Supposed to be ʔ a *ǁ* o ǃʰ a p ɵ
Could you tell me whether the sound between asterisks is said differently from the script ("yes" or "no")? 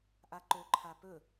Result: yes